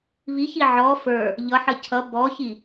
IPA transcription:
β i ç i ʕ ɔ f ə˞ | ʎ ʌ ħ ə cʰ ʌ b ɔ ç i

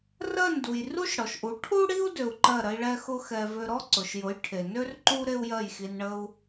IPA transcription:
r ɜ˥˩ n d u˩ j r u˥ ʃ ɽ ɔ˩ ʃ ʔ u˩˥ ʈʰ u˥ ɽ i˥ u̯ d ø˧ u̯ ǃ ɜ˥˩ ɾ ə˥ i̯ ɭ ɛ˥ x ʊ˥ x ɛ˧ v ø˧ ɾ ɔ˥ ǀ ʊ˩ ʃ j ʊ˩˥ j ʈʰ e˩ n ø˥ r ǃ u˥ ɾ e˥ u̯ j ɜ˥˩ j x i˧ n ɳ ə˥ u̯

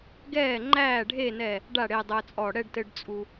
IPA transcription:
ɡ ɛː˧˩ ŋ͡ǃ æː˧˩ ɖʱ e˥˨ n ɛ˧˩ | ɖ a˥˨ ɽ e˧ dˤ əː˧ t͡sʼ ɔ˧˩ ɽ ɛ˥˨ ɖ t ɘ˧ ɖ t͡sʼ u˧

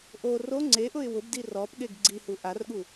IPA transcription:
ʔ o r o ŋ͡ǀ e ʔ ʊ ɪ̯ w ʊ b d i r ɔ p ɠ e ɡ ɡ͡ǀ i h u ʔ a r ɠ u

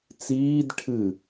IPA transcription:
t͡s iː d ʈʰ ɨ

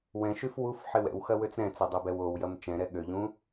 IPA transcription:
w ɛ̃ ʃ y f w u f ħ ɪ w ɛ̰ w x ɐ w ø t͡s ɾ ɛ̃ t͡s ɛ dˤ ɛ b ɛ w o w j ɐ m t͡ʃ ɛ̃ ɾ ɛ ɠ ø ʎ ũ

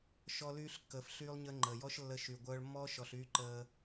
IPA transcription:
ʃ ɔ˧ l yː˧ ɬ kː əː˨ f ɬ yː˦ lˠ ɲ ə˦ ŋ͡ǃ əː˨ j ɔ˦ ʃ lː ə˧ ʃ y˨ ɡʷ œː˧ ɭ mː ɔː˦ ʃ ɔ˨ ɬ yː˦ ǃ əː˧

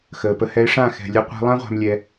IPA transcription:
x əː˨ p ə˧ h ɛ˦ ɪ̯ ʂ ã˦˨ x ɛ̤˨ lʲ ə˧ qʷ ɛ̤˧ lˠ ã˦ ʁʷ a̤˧ m lʲ ɛ˧

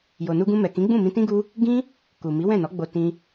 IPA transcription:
j o˨ n u˧ ɡ ũ˧ m ɛ˨ k ĩ˨˦ ɡ͡b ũ˦˨ m ĩ˧ t ĩ˦ ɡ u˦ | ɡ ĩ˦ | k u˨ m i˨˦ w ɛ̃˦˨ n ɔ˨˦ ɡ͡b o˧ t ĩ˧

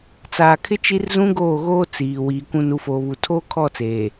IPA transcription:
t͡s aː˨ kʰ ɪ˦ t͡ʃ i˦ r z ũ˦ ɡ oː˦˨ ɣ oː˦ t͡s iː˨ w iː˨ kʷ ũ˨ n u˨ f oː˨ β u˨ tʰ oː˦ kʰ ɔ˦˨ t͡s eː˨

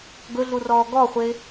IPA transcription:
ɡ ɵ ɮ u r ɔː ɡ ɔ χʷ e

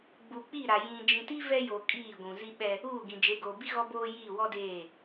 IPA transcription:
ɡ͡b u˨ k͡p i˦˨ ɾ a˨ j ĩ˨ d͡ʒ ĩ˨ t i˦ v ɛ˦ j o˨ kʼ iː˦˨ ɡʷ ũ˨ z i˦ ɓ ɛ˦ | uː˦˨ ɡ ĩ˨ d͡ʒ e˨˦ ɡ oː˨ b i˦ ɣ ɔ˦ b oː˦ j iː˦˨ w ɔ˦ d eː˦˨

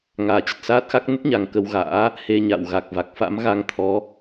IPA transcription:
ŋ aː˨˩ t͡ɕ ə˨˩ t̚ s aː˦˥ t̚ x a˦˥ k̚ n ə˦˥ t̚ ɲ a˨˩ ŋ k ə˧ w ɣ a̰ː˧˥ | h e˧ ɲ a̰˧˨ w ɣ a˨˩ k̚ v a˨˩ k̚ f a̰˧˥ m ɣ a˧ ŋ t̪ʰ ɔ˨˦

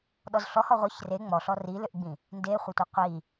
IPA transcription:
ɗ ɔ z ɬ ɔ h ɔ ʁʷ ə ç r e ŋ͡m ɔ ɬ ɔ r i l ʏ ʔ ɡ͡b ĩ | n d e χʷ ə tʷ ə qʷ i

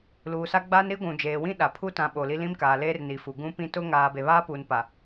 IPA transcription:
l uː˨ s a˦ ɡ͡b aː˦ n ɾ i˦ ɡʷ ũ˨ d͡ʒ eː˨ w ĩ˦ ɗ a˨ pʰ u˦ t ã˨˦ ɓ oː˨ l i˦ l ĩ˦ m k aː˨ l eː˦ r n i˨ f u˨ ɡ ũ˦ p ĩ˦ t ʊ˦ ŋ aː˨ b e˨ β aː˦ p uː˨ n p a˨

